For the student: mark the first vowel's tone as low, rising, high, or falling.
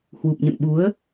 low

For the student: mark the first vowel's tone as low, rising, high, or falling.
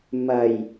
low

